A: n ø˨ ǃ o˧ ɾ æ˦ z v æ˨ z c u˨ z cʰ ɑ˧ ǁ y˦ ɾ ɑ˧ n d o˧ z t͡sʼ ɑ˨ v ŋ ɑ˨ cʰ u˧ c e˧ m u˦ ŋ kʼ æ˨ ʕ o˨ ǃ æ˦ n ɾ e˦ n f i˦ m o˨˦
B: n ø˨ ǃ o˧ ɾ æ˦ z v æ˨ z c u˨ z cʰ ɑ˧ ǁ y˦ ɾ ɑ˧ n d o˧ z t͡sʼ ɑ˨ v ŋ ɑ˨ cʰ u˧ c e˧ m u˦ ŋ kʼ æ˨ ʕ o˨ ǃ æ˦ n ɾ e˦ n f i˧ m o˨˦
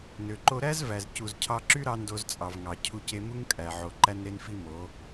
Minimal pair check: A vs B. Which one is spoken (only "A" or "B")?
A